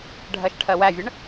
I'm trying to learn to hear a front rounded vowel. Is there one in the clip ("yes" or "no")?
no